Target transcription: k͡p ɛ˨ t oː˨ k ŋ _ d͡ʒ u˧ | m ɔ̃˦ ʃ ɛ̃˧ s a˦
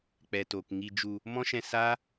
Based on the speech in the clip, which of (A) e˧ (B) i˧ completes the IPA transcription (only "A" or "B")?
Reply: B